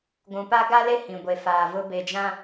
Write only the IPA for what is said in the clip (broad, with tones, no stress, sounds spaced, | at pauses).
ɡʷ ũ˨ p a˦ ɡ a˦ l e˦ h ĩ˨ ɡʷ e˨ f aː˨ v ʊ˦ b e˨ d͡ʒ ã˦